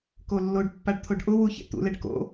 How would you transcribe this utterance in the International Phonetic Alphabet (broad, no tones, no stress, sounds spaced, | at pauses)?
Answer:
k o lː o ɖ pː a ɖ t̪ʰ o ɖ ʔ ʊ w u ç ḛ t̪ ṵ l ɛ ɖ k o̰